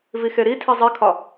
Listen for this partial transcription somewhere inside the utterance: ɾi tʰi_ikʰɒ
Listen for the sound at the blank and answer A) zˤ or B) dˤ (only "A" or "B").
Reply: A